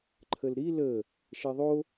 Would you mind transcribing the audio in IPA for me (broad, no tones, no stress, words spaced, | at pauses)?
ǃʰəlɾi lə | ʃɛðˤo